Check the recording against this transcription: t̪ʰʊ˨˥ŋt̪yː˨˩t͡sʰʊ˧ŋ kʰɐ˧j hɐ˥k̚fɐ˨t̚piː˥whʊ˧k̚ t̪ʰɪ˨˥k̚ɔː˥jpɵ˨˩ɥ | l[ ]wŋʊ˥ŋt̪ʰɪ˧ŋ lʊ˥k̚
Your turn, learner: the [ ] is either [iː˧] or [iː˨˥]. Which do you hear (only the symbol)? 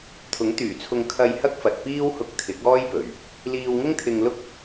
iː˧